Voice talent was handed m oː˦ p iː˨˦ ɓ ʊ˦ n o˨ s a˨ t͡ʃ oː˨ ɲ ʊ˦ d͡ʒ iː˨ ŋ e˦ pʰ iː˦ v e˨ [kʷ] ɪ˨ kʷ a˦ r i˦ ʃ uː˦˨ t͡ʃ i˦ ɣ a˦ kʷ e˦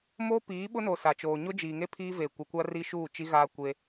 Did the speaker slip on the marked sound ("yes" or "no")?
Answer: no